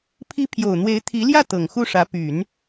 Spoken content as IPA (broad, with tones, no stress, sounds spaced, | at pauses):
pʰ i˧˥ pʰ j o˨˩ ʊ̯ n̪ w e˧˥ ɪ̯ t̪ʰ i˧˥ l j ä˥˩ t̪ ɤ˨˩ ŋ x u˥˩ ʂ ä˧˥ p y˨˩˦ n